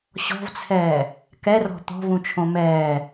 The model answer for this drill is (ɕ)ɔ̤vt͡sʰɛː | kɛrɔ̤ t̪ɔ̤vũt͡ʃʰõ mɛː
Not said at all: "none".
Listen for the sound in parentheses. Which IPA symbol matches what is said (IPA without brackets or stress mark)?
ɕ